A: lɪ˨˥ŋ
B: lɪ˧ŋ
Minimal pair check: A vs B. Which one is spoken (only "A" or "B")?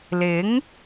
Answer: A